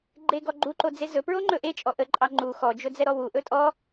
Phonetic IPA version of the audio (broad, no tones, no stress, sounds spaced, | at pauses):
ɡ͡ǃ e ɡ ɔ ɡ͡ǃ u ǃ o d͡z e z ɵ p ɹ o ŋ͡ǃ ɵ ʔ e t͡ʃʼ ɔ ʔ ə ǃʼ ɑ ŋ͡ǃ u x ɔ d͡ʒ ɵ d͡z ɛ ɾ ɔ w u ʔ ɵ tʼ ɔ